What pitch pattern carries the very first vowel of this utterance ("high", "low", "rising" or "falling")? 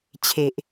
low